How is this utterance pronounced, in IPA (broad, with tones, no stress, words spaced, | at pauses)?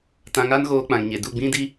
tã˧ŋa˦nɣoː˧k͡pã˨ŋ ɲe˨ du˦˨ɡ͡bĩ˦di˦